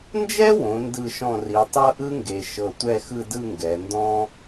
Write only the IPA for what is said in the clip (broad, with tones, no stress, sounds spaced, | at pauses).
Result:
n d͡ʒ ɛ˥ w õ˩˧ n d ɯ˧˩ ʃ ɔ̃˧˩ r i˩˧ tˤ ɤ˥ ʔ ɯ˥ ŋ ɡ e˩˧ ʃ ɤ˧˩ tʷ ɛ˥˧ x ɯ˥˧ d ɯ˥˧ ŋ ɡ ɛ˩˧ n d ɔ̃˥